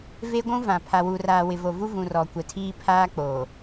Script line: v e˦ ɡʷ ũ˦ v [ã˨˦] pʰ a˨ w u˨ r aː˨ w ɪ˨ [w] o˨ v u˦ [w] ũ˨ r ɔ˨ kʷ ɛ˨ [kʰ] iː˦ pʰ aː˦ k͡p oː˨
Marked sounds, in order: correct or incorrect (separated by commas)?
incorrect, incorrect, incorrect, incorrect